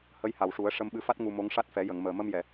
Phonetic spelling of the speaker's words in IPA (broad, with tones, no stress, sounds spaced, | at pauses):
h ə˧˥ j h a˨˩ w ʂ u˨˩˦ ə̯ ʂ ə˧ m ɓ ɨ˧ f a˦˥ t̚ ŋ u˧ m o˧˥ ŋ ʂ a˦˥ t̚ f ɛ˨˩˦ j ə˨˩˨ ŋ m əː˨˩ m ə˧ m j ɛ˨˩˨